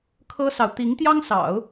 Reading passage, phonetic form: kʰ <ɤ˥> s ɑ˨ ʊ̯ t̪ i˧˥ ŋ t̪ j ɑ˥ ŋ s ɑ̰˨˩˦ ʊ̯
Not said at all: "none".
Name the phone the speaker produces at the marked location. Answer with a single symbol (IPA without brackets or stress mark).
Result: ɤ˥